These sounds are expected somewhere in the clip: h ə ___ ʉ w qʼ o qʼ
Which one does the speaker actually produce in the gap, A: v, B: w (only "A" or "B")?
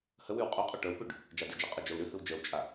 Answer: B